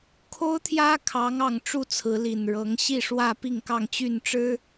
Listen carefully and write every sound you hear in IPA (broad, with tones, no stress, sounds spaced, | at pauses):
kʰ o˦ ʊ̯ t̪ʰ j ä˦ kʰ ɑ˨˦ ŋ ɑ˨˩ ŋ ʈ͡ʂ u˥˨ t͡sʰ ɹ̩˨˦ l i˨˩ n ɻ ɤ˨˦ ŋ ɕ i˥˨ ʂ w ä˥˨ p i˥˨ ŋ k ɑ˥˨ ŋ t͡ɕ y˥˨ n ʈ͡ʂ ɻ̩˦